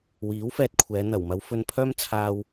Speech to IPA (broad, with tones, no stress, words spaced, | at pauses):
wiː˨˥wfɛː˧t̚kʷʰɛː˨˧ n̪ɐ˨˩wmɐ˨˧wfɵ˧n pʰœː˥mt͡sʰaː˧w